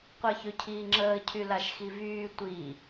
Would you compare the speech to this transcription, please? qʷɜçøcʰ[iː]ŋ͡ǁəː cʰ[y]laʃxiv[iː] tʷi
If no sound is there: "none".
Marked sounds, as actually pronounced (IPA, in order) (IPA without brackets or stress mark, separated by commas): iː, y, yː